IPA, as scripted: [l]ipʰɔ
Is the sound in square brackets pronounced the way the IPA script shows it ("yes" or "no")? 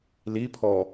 yes